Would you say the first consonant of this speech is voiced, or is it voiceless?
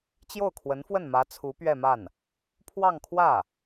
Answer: voiceless